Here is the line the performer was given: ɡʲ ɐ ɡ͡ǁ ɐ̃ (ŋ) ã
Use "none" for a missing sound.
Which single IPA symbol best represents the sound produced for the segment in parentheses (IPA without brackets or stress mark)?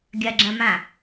m